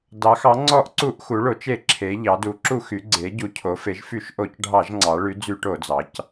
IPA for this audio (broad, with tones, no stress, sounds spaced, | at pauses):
d ɑ˩˧ x ɑ˩˧ ŋ͡ǀ ɔ˧˩˧ ʔ ǀ u˧˩˧ ʔ x u˩˧ ɭ o˩˧ t͡ʃ e˧˩˧ ǁʰ e˩˧ ʎ ɑ˩˧ d u˩˧ ǁ u˧˩˧ x y˩˧ ɡ͡ǀ e˩˧ ɟ u˩˧ cʰ o˩˧ f e˩˧ ʒ f y˧˩˧ ʃ ʔ o˧˩˧ c ɖʱ ɑ˧˩˧ ʒ ŋ͡ǀ ɑ˩˧ ɭ y˩˧ d͡z y˧˩˧ ʈ o˧˩˧ d͡z ɑ˩˧ c